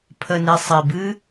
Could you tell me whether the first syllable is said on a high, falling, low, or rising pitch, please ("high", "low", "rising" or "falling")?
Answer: low